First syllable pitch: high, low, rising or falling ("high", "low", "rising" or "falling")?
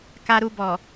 low